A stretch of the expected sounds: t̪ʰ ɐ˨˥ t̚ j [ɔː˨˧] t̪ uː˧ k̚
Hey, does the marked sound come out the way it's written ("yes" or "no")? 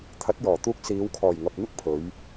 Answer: no